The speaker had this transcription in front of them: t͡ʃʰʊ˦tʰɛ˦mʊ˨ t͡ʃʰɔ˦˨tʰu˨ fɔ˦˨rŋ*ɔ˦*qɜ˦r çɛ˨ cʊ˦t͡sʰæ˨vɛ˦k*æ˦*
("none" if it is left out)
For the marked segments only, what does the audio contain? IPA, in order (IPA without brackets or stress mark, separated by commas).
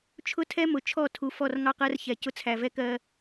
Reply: ɑ˦, ɜ˦